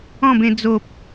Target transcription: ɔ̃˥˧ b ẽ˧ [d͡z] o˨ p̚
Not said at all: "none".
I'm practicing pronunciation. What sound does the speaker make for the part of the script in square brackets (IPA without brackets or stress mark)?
d͡z